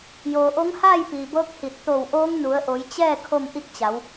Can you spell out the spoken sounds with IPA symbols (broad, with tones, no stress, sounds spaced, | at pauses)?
j oː˩ ʔ o˧˥ ŋ h aː˥˨ j p iː˩ b ɤː˧˥ k̚ h i˧˩ t̚ t̪ o˧˩ w ʔ oː˧˥ ŋ n u˩˧ ə̯ ʔ o˩˧ j t͡ɕ ɛː˥˨ kʰ o˥˨ m ʔ i˥˨ k̚ t͡ɕ a˩˧ w